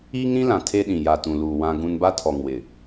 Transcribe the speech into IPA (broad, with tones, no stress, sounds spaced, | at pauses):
iː˦ ŋ ɾ ĩ˦ l ã˨ tʰ e˦ ɗ ĩ˨ j a˨ t ũ˨ l uː˨ w ã˦ ɡ ũ˦ n b a˦ tʰ ɔ˨ ŋ w ɪ˨